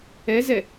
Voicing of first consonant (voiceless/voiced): voiced